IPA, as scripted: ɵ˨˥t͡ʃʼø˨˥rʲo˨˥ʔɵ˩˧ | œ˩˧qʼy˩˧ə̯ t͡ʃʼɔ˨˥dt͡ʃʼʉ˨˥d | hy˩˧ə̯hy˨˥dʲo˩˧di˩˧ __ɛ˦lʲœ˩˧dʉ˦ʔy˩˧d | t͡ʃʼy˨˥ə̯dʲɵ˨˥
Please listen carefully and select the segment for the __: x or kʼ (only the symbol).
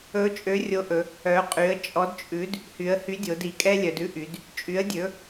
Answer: kʼ